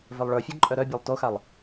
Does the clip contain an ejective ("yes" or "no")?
yes